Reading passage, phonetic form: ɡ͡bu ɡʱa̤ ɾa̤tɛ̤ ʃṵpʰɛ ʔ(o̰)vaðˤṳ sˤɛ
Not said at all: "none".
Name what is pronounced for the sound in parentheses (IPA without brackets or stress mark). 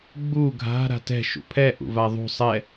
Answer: ṵ